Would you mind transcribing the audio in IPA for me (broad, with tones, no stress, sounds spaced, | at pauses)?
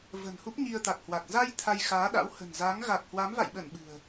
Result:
v ə̤˨˩ n h u˦˥ p̚ ɲ i˧ ə̯ t̪ a˨˩ k̚ h w a˨˩ k̚ z a˧ j t̪ʰ a˧ j x aː˨˦ ɗ a̰˧˥ w h ə̤˨˩ n z a˨˦ ŋ ɣ a˨˩ k̚ h w a˨˦ m v a̰˧˨ j ɓ ə˧˩ n ɓ ɨ̤˨˩ ə̯